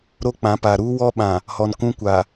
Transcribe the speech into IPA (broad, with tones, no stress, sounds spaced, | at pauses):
ɾ o˦ k͡p ã˨˦ p a˨ ɾ uː˦ w ɔ˦ ɓ ã˨ | h ɔ˨ n k ũ˦ kʷ a˨